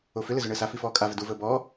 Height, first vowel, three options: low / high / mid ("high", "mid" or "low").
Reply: mid